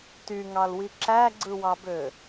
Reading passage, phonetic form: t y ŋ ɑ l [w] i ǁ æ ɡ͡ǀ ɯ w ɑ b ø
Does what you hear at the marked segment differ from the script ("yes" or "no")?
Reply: no